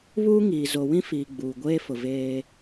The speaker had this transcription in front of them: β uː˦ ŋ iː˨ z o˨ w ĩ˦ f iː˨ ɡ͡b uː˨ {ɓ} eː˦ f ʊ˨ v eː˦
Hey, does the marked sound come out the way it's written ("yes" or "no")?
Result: no